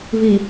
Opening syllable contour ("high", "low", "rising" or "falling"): low